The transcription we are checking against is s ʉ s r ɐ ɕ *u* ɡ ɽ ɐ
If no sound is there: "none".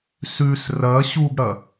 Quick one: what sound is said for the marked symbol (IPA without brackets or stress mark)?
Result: u